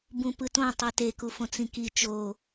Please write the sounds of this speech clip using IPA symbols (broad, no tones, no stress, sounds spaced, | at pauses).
b ũ p ɯ t õ tˤ e t e k u f õ t͡s ĩ k i t͡ʃ o